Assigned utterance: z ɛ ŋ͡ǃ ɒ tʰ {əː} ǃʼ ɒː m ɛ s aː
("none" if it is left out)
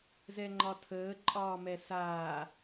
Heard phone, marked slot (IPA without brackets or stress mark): əː